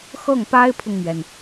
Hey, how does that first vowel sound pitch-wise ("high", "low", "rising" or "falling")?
falling